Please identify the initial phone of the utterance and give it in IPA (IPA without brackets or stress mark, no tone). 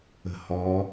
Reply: ə̤